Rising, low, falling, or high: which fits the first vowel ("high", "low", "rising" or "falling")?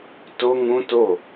high